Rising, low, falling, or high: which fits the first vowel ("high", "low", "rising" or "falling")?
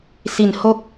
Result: low